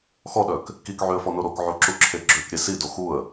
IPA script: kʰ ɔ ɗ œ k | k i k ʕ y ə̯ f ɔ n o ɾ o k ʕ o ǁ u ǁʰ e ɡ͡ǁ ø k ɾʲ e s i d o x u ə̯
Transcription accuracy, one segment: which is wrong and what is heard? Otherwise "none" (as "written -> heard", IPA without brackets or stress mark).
kʰ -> x